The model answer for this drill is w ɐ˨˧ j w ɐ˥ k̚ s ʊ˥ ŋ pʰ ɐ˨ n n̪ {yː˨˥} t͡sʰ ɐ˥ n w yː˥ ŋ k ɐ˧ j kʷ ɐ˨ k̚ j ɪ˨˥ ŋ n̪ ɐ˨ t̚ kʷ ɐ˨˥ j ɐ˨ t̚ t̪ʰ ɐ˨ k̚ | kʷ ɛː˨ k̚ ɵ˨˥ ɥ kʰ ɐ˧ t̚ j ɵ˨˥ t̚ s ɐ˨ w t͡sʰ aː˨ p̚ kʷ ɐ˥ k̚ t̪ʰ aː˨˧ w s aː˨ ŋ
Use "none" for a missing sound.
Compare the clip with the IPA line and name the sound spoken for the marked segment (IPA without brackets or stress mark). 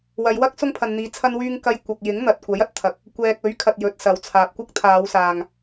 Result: iː˨˥